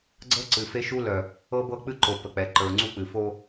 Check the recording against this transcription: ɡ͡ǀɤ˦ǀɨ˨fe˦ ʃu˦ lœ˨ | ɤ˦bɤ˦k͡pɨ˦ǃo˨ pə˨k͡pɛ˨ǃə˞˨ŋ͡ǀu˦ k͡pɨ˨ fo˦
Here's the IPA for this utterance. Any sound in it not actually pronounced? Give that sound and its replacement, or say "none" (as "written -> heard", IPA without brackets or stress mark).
none